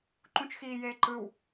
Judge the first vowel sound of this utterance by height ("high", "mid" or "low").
high